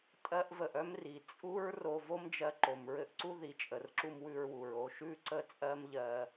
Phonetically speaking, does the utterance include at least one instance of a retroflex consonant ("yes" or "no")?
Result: no